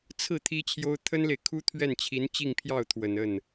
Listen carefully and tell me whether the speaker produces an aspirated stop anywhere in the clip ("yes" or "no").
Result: yes